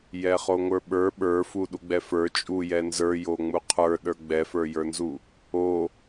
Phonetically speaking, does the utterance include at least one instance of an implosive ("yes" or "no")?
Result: yes